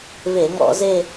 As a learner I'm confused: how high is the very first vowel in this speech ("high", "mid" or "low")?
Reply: mid